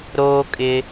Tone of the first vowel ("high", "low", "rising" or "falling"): high